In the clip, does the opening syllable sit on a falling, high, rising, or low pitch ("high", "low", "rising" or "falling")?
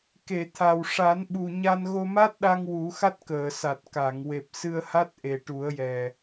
low